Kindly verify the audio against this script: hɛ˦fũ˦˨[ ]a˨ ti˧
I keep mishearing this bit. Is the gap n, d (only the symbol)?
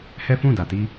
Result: d